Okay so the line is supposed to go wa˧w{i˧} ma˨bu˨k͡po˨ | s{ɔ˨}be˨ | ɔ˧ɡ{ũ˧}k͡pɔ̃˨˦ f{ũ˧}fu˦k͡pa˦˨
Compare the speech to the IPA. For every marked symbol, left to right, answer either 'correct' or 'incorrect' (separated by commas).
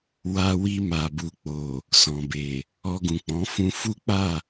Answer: correct, incorrect, incorrect, correct